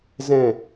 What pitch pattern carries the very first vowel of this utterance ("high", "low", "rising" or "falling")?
falling